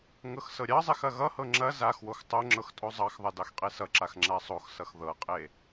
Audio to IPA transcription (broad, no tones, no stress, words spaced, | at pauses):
ŋɤxsɤɾʲɑzˤex ɐɣʌhɤ ŋ͡ǁɐ zaxwox tˤoŋ͡ǁɤx tʼozˤɑxðˤɐ dɑxqʼesʌǁax ŋ͡ǁasˤoxsʌx ðɤqʼe